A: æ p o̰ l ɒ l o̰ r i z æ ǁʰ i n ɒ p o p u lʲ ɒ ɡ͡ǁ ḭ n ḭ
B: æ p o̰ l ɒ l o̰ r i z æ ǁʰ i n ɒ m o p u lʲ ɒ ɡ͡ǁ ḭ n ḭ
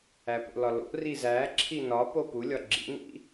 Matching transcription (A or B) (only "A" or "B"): A